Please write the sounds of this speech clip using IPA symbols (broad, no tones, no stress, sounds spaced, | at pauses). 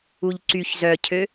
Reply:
u ʎ ǀ y ç z œ cʰ ø